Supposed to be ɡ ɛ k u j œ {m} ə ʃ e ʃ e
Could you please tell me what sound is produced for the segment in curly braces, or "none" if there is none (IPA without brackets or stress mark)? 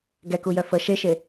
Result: f